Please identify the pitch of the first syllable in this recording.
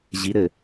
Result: rising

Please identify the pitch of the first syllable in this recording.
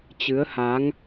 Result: rising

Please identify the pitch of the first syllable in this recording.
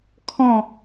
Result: falling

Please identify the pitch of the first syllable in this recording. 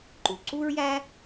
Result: low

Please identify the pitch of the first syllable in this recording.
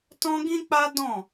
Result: high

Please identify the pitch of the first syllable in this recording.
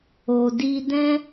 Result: low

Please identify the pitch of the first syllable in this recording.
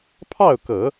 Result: falling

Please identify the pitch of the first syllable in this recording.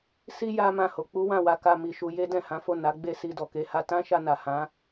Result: high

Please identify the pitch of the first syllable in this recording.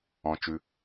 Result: low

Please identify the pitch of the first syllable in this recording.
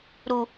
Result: low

